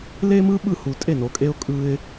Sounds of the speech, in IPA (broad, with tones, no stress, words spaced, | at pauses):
le˦mɯ˦ ɓɯ˥˩hu˨ tʼe˥˩no˨kʼe˦ʊ̯ kʼɯ˦ɪ̯